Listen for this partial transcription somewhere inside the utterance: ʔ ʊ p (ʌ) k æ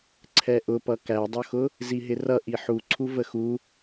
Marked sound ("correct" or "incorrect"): correct